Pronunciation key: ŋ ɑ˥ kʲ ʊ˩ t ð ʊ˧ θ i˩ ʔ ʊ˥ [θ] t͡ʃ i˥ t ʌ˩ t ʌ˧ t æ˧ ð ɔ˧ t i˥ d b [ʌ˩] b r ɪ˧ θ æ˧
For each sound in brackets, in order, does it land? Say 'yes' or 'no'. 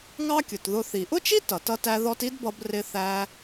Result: no, no

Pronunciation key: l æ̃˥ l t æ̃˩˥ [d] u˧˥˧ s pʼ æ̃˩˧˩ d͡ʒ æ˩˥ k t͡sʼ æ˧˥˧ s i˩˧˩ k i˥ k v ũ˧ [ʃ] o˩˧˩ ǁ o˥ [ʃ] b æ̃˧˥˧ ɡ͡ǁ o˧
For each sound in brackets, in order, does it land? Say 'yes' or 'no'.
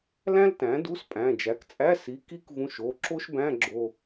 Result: yes, yes, yes

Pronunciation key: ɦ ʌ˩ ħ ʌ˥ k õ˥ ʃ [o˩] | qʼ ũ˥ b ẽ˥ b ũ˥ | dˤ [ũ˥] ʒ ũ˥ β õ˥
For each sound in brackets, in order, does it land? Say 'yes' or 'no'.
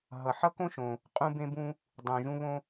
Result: no, no

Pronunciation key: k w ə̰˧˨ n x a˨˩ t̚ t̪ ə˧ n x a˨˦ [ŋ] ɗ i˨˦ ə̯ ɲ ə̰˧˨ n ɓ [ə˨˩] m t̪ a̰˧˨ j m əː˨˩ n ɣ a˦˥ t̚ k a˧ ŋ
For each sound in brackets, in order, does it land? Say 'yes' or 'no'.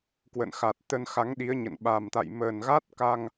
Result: yes, no

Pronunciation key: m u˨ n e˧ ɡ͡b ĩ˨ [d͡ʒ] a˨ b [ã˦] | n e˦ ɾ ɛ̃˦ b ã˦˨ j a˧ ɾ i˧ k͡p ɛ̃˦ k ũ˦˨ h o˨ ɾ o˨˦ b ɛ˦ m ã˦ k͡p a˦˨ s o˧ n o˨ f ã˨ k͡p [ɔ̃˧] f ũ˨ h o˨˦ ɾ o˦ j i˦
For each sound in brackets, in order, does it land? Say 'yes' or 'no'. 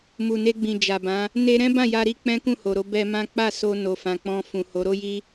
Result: yes, no, yes

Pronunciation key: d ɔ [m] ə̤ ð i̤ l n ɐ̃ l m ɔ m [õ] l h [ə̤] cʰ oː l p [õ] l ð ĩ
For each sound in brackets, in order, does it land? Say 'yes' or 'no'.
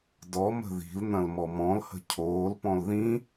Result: yes, no, yes, no

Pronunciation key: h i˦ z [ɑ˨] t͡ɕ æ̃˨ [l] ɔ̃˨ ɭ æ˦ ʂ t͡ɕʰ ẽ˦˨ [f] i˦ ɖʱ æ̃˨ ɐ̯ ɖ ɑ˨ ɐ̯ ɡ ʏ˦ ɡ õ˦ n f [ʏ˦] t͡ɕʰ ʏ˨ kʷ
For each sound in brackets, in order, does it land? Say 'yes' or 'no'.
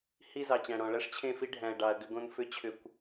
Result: yes, no, yes, yes

